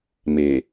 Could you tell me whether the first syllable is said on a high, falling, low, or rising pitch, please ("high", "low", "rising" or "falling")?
low